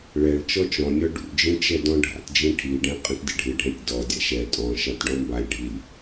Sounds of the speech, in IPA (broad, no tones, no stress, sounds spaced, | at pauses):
ɭ ɛ ɭ t͡ʃ ɔ t͡ʃ ɔ̃ nʲ ɔ ɖ ṵ d͡ʒ ĩ t͡ʃ ɛ d ɔ̃ ɖʱ a̰ t d͡ʒ ĩ ʈʰ i ɖ ɛ̃ qʼ ə̃ t dʲ ə̰ ɖʱ ɨ ɖʱ ɛ̃ tʲ d ɔ dʲ a̰ ʃ ɛ tʼ ɔ̃ ʃ a t ɖ ɔ̃ m b a lʲ ɖʱ i lʲ